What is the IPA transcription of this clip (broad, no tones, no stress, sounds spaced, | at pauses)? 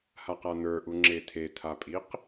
h a q a n̪ ə˞ ʔ u ŋ͡ǁ e tʰ e tʰ a pʼ i q